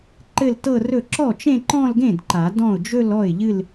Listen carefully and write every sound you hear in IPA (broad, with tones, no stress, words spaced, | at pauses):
ǃɘ˥˧ltɤ˥˧rɵ˥˩ ǁɔ˥˩t͡ʃẽ˥˧ǃɔ̃˥˧lɡẽ˥˩d ǃa˨˩˦ dɔ̃˥˩ʊ̯ d͡ʒɵ˥˧lɔ˥˩ɪ̯ʎɨ˥˧l